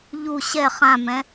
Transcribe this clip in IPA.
ʎ u ɕ ɛ χ ã m ɛ̃

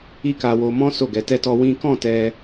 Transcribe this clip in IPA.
i˦ k a˧ w o˧ m ɔ̃˦ s o˦˨ ɡ ɛ˨˦ t ɛ˦ t ɔ˦ w ĩ˦ k ɔ̃˦˨ t ɛ˧

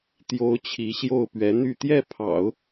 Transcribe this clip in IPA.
t̪ j o˧˥ ʊ̯ t͡ɕʰ i˧˥ ɕ j o˥˩ ʊ̯ p ɥ ɛ˧˥ n̪ y˥˧ t̪ j ɛ˥˩ pʰ ɑ̰˨˩˦ ʊ̯

